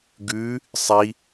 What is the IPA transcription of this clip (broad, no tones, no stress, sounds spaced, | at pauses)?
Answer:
ɡ ʉ | sˤ i